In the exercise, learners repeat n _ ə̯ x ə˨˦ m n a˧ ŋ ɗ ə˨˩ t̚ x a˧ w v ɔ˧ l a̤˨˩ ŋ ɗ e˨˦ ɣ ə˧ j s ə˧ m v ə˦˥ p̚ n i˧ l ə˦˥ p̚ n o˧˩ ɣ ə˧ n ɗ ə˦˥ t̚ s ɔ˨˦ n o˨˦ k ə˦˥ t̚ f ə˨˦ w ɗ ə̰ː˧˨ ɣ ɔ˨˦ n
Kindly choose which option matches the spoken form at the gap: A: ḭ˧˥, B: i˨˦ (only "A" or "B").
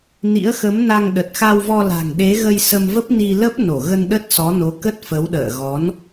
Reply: A